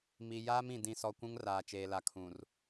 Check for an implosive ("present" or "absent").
absent